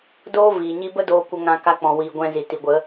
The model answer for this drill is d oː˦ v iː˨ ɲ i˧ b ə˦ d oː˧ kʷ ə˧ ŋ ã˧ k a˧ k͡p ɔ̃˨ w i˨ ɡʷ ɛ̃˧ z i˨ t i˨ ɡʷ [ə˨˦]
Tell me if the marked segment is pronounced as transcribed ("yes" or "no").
yes